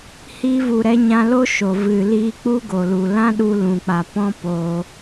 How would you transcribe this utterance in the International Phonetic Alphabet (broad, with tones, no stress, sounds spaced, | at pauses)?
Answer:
h iː˧ v u˨ ɾ ɛ˧ ɲ ã˧ l o˦ ʃ o˨ v ɨ˨ l iː˧ k͡p u˦ ɡ o˨ l u˨ l ã˦ ɗ u˧ l ũ˨ k͡p a˨ p ɔ̃˦ p oː˧